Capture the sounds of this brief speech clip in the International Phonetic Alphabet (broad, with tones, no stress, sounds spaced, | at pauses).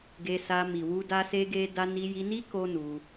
ɡ e˧ s a˧ m i˨ w u˧ d a˦ s e˦ ɡ e˦ d a˧ n i˧ j i˧ n i˦ k o˦ n u˧